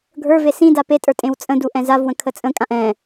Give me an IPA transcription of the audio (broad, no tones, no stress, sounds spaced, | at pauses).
ɡʱ ə˞ v e s ĩ d a p e tʼ ə˞ tʼ ẽ w t͡sʼ ə̃ d u ʔ ɛ̃ z a v w ə̃ kʰ ə t͡sʼ ə̃ kʼ ã ʔ ɛ̃